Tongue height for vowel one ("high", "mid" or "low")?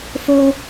mid